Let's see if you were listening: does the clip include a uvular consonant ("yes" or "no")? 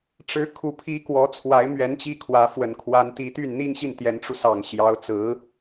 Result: no